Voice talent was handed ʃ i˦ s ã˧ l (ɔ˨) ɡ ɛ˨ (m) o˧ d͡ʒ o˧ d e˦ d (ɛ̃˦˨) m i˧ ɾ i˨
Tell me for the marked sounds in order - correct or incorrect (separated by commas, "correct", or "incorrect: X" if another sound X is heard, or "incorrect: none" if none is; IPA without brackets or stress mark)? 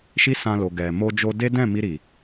incorrect: o˨, correct, correct